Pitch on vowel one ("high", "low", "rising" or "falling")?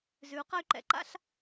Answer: rising